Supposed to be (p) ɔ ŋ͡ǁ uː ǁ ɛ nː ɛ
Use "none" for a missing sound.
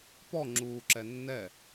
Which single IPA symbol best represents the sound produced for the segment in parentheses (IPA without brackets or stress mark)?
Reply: p